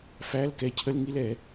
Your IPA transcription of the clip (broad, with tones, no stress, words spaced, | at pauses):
fæ˧˥˧l kɛ˨˥cʰə˧˥˧lŋi˥˧lɛ˩˧